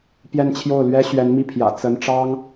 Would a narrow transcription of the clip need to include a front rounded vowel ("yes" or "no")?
no